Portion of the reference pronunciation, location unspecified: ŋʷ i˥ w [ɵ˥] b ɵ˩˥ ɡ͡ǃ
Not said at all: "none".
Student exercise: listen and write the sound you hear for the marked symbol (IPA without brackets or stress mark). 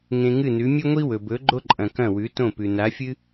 ɵ˩